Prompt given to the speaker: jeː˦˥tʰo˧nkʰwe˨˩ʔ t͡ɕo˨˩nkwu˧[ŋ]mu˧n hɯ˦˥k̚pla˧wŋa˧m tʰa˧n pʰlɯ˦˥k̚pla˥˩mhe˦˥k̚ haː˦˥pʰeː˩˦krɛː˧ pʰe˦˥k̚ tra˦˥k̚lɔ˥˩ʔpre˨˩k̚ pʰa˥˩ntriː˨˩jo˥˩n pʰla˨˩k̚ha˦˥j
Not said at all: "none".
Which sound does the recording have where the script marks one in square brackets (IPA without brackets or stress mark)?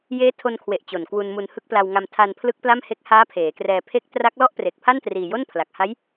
n